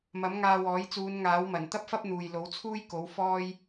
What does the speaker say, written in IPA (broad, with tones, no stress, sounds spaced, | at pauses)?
m ɐ˨˥ m ŋ aː˧ w ɔː˨˥ j t͡s uː˨˧ n ŋ aː˨˥ w m ɐ˨˩ n t̪ ɐ˥ p̚ f ɐ˥ p̚ n̪ uː˨ j l o˨˥ w t͡sʰ uː˥ j k o˨˥ w f ɔː˥ j